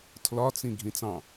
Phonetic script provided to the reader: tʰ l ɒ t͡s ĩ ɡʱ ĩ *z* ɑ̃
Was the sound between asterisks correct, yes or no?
no